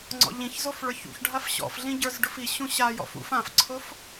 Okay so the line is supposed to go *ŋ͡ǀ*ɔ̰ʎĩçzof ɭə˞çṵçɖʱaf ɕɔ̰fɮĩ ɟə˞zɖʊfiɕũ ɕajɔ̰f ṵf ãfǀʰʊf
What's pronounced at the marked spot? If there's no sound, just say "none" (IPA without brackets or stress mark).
ŋ͡ǀ